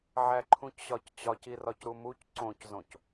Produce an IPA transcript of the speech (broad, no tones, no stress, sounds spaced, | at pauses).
ʕ æ ǃʰ ũ c ɕ ɒ c t͡ɕ ɒ c i r ɒ c ɾ u m u c ǀ õ c z õ c